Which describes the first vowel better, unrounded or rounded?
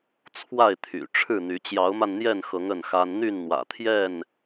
unrounded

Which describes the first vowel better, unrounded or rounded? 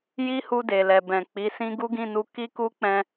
unrounded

